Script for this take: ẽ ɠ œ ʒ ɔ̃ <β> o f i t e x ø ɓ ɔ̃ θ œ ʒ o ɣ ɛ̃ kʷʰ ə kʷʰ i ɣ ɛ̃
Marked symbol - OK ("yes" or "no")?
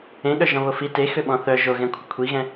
yes